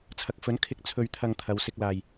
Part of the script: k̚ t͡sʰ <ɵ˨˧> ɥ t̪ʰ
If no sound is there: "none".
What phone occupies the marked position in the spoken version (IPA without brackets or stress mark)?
ɵ˧